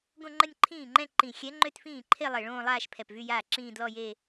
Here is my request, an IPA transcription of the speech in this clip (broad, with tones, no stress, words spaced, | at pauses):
ɡõ˥˧ŋ͡ǃə˥˧nʲǃʰĩː˥˩ŋ͡ǃɛ̃˥˧ ǃĩ˨˩ xʲɛ˧˥ŋ͡ǃø˥˧tfĩː˥˩ǃʰe˥˧ lˠe˨˩ɭõː˥˧lˠaː˥˧ʃ pʰɛ˨˩pvy˥˧jaː˥˩ǁĩː˥˧ dlɔ˥˧je˥˧